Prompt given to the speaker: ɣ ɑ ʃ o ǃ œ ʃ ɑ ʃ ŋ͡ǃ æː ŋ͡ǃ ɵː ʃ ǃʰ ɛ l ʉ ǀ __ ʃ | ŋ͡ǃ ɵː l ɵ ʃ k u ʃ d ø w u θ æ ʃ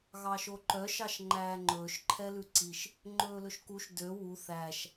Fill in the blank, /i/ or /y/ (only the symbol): i